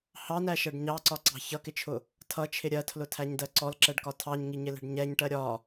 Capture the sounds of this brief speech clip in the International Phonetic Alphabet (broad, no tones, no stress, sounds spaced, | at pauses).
h ɑ n æ ʃ ɜ ɖ ɲ ɑ ǀ ɒ ǀ ɑ̤ ç ʌ k ɪ t͡ʃʰ ʊ | tʰ ʌ t͡ʃʰ ɪ ɾʲ ɜ tʰ l ʊ tʰ æ ɲ d ɜ ǀ ɔ l ǁ ɛ ɖ k ɒ tʰ ɑ ɲ ŋ i ɲ ɪ l ɛ̤ ɖ ɲ ɛ ɲ ʈ ɜ ɾʲ ɒ